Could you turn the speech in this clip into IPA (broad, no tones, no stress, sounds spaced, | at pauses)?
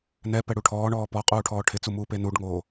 n ɛ p ɛ ɽ u ʈʰ ɔː ɳ ɔː p ɔ qʼ uː ʈʰ ɔː ʈʰ ɪ t͡s u m uː p e n u ɖ ŋ oː